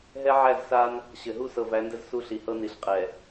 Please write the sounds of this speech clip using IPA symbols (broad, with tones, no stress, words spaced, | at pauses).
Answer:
ɦɛ˦ ʕæ˦˨zsa˦n | ɕɘ˨ɦu˦ sɤ˨væ˨˦ndɘ˦z su˦ɬi˨hɤ˦ni˨˦ɬ qʼɛ˨